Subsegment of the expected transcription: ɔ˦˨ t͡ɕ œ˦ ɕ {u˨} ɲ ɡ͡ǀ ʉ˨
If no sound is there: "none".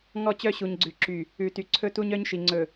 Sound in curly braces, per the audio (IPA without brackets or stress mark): u˨